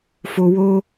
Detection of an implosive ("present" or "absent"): absent